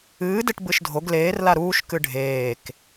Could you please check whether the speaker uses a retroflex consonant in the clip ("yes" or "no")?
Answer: yes